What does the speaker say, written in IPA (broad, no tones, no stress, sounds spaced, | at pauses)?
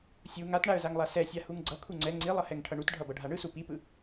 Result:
sʲ u ŋ a t ɳ a ə̯ z a ŋ lˠ a s ɛ sʲ a h u ŋ ɡ͡ǀ ʌ kʰ u ŋ͡ǀ ɛ ŋ͡ǀ i lˠ ʌ h ɛ ŋ ʈʰ ʌ ɳ u t ɖʱ ʌ b ʌ ɖʱ a ɳ ɯ s u p i p ɯ